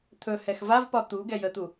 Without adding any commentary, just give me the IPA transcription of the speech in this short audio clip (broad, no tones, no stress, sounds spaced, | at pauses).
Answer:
t̪ʰ ɵ h ɛ x v a v p ɒ t̪ u ɡ ɛ j ə t̪ u